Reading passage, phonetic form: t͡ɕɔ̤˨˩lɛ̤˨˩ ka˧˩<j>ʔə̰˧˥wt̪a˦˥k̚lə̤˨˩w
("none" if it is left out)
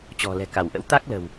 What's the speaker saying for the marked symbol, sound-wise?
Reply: w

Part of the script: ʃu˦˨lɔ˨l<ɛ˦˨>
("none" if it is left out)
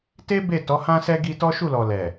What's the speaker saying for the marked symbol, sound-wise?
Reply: ɛ˨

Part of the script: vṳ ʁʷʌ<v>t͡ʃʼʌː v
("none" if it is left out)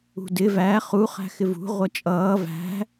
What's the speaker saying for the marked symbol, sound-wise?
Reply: none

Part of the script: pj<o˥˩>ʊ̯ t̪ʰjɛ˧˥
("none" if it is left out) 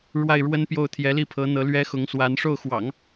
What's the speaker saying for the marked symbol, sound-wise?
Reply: o˥˩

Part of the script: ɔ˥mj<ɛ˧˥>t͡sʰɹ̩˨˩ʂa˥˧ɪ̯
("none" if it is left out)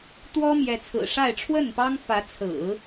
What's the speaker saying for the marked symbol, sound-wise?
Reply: ɛ˧˥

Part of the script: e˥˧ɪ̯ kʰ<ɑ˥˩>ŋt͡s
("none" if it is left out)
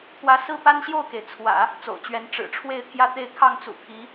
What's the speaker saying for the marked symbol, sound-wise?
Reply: ɑ˥˩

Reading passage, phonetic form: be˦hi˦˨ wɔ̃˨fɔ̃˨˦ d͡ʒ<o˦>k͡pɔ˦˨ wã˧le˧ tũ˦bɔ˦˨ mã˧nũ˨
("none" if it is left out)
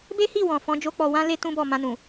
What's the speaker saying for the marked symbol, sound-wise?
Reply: o˦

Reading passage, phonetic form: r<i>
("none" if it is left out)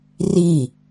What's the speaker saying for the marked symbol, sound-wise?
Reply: i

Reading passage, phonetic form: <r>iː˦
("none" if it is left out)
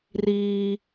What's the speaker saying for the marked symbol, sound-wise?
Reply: r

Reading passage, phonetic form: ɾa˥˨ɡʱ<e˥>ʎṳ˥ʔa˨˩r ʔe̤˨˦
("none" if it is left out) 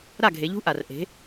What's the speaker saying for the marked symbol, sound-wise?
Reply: e˨˦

